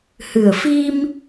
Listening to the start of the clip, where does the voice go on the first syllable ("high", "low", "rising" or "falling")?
low